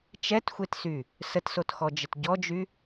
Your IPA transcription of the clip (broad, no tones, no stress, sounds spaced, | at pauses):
t͡ʃ ɛ t xʷ e t s y | s ə t s o t x ɔ d͡ʒ ə t ɟ ɔ d͡ʒ y